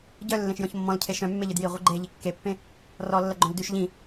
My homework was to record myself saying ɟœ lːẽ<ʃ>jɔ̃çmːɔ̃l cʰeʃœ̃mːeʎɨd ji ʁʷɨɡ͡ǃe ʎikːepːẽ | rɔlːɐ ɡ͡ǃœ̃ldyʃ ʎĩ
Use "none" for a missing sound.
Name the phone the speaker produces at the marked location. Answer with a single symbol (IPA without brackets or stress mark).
ʃ